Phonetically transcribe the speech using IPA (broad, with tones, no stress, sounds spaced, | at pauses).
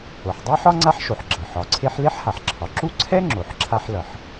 o˩ ħ dˤ a˥ ħ ɒ˥ ŋ͡ǀ a˥ ħ ʃ o˩ ħ ɡ͡ǁ ʌ˩ ħ ɒ˩ ǀʰ e˥ ħ l e˥ ħ h a˩ ħ ǁʰ ɒ˩ ǁ u˥ ǀʰ ɛ˥ ŋ͡ǁ o˩ ħ ǁʰ a˥ ħ l ʌ˩ ħ